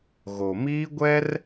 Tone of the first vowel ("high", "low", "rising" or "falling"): low